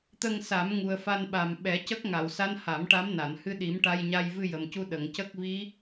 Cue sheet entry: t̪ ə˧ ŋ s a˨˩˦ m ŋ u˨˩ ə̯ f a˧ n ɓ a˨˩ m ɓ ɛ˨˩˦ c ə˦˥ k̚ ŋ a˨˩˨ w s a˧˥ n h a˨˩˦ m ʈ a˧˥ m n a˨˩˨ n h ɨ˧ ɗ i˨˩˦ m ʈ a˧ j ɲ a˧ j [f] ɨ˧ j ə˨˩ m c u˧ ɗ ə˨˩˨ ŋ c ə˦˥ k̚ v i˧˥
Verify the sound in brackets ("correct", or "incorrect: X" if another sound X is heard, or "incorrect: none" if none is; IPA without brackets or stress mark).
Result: incorrect: v